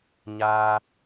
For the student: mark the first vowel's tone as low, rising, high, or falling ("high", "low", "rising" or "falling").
high